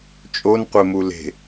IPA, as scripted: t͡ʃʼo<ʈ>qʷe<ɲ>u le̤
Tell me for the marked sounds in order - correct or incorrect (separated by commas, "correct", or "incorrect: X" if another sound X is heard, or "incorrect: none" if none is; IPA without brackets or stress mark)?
incorrect: n, incorrect: m